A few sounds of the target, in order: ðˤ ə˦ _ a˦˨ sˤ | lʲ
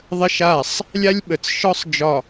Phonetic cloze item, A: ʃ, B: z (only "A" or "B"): A